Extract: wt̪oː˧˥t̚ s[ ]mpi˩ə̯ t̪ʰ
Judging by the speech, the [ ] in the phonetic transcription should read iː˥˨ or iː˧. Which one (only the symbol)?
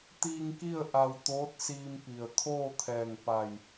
iː˧